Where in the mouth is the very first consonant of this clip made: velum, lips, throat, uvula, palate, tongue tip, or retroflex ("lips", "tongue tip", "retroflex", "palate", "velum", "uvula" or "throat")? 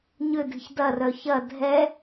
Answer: palate